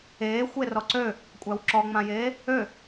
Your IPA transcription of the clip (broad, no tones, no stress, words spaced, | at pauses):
eːxʷe rɔǀø | kʷʼæwǁɔŋ͡mãjeː | ø